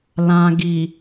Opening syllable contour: low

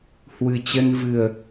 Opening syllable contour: low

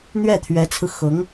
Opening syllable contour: falling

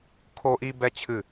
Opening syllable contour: high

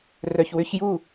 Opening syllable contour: low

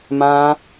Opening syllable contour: high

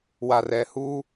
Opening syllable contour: low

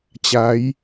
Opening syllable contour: rising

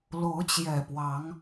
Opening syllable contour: rising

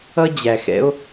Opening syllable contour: high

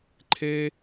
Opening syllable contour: high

